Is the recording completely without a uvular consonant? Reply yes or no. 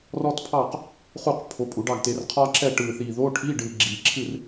no